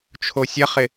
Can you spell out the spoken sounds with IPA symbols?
t͡ʃʰosʲɐχɪ

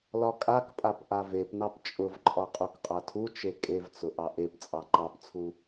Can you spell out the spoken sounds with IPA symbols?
lɒkʼakpʼap ʔavepnɑp t͡ʃʼʊvǃʼɒ qʼukqʼatʰut͡ʃe kʼevt͡sʊ ʔɑʔept͡sʼɑ ǃɑpt͡sʰu

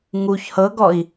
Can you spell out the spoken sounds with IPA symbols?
ŋuç hɤɡɔi̯

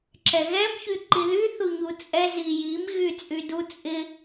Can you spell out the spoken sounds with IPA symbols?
ǁɛɣɛm çyǃiðy θuɲut͡sʼɛ zijim ɣyt͡sʼydu t͡sʼɪ

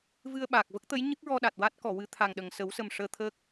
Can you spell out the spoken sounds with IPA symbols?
vɨ˧ə̯ɓaː˨˩k̚ və˦˥k̚t̪ə˧˥j ɲɨ˦˥k̚ɹɔ˧ɗa˨˩t̚ wa˦˥t̚ kɔ˨˩˨ wɨ˧˥t̪ʰa˨˩ŋɗə˨˩ŋ sə˨˩˦wsə˨˩m ʂəː˧t̪ʰəː˦˥k̚

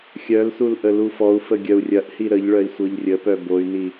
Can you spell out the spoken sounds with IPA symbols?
xʲœlsul ʔəlufɔu̯fə ɡʲœu̯rʲɐʔhi ɾəʎ ɭœi̯sʷɤʎrʲəpœ boy̯ni

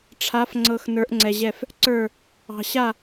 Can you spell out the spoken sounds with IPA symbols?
ʈ͡ʂʰa˧˥f ŋ͡ǀɤ˧x nə˞˧˥ʔŋ͡ǀɛ˧ʑɛ˥˨f | ǀə˞˥˨ | ɑ̤˧ ɕa˥˨

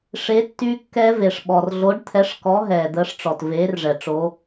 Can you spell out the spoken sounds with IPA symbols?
ʂe˨˥tːy˦˥kːɛ˦˥ve˩ʂ ɓɔ˩r ɮo˨˥ɖt̪ʰɛ˨˥ʂkɔ˨˥ ɦɛː˩d̪əː˨˥ʂʈ͡ʂɔ˩t veː˨˥rʐɛ˩ ʈ͡ʂo˨˥

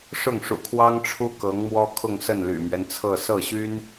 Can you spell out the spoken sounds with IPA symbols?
ʂʊ˥˩ŋʂṵ˨˩kʰwɑ˥ŋ ʈ͡ʂʰu˥kɤ˧˥ŋ mwɔ˥kʰʊ˥˧ŋsə˥˩n ly̰˨˩mɥɛ˦nt͡sʰɤ˥˧ sɤ˥˩ɕy˥n

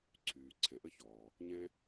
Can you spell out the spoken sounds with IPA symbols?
ǀʰyː˩ǀʰɛ̃˩ ʔə˥çɔː˩ | ɲɛ̃˥

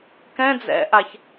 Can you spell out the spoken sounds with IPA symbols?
kɛ̃ d͡zɛ̰ʔaç

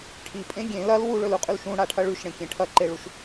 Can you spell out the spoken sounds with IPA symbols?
ʈʰipʼẽ ɡʲẽ lɐl wuɭɵluqʼʉl ʃũɽaʈʰɐ ɭʉʃɽẽkʲẽ ʈʰɐǃeɭuʃ

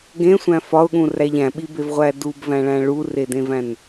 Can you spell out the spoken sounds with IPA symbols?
ɡẽsʷæ̃ fɒʊ̯ɠũræʎ æ̃ɓibevʁʷæ dubvæ̃ɭæ̃ ɭuredẽvæ̃n

